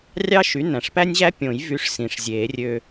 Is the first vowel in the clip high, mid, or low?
low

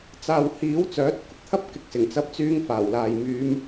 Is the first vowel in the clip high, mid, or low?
low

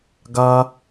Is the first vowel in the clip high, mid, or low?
low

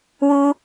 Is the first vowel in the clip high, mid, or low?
high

